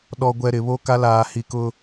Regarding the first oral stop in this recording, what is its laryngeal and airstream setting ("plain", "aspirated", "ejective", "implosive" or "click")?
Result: implosive